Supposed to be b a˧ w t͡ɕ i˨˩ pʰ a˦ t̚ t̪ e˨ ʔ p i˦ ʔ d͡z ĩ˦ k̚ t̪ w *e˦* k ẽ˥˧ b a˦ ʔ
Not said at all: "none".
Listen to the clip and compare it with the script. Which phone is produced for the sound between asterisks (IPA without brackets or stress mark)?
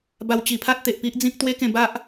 e˦